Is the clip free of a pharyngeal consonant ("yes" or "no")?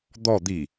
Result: yes